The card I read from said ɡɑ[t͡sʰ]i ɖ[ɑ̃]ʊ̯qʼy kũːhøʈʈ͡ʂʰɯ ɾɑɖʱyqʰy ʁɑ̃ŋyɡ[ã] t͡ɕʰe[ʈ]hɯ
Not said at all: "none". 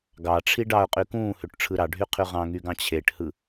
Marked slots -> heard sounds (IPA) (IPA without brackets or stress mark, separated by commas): ʈ͡ʂʰ, ɑ, ɑ̃, ʈ